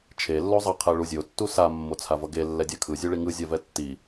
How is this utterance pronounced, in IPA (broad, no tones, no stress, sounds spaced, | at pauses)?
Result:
t͡ʃʰ e lː o zˤ ʌ qʰ ɛ ɭ u zʲ o tː u s a mː o t͡sʰ a v ʌ ɡ e lː ɛ dʲ a kʰ ɯ zʲ u ɭ i ŋ ɯ zʲ a v ɛ tː i